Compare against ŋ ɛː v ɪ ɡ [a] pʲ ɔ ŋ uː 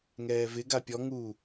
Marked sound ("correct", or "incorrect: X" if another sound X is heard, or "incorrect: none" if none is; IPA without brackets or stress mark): correct